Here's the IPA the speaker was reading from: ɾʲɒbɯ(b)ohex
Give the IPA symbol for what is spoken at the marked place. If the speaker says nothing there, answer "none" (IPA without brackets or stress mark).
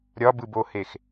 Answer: b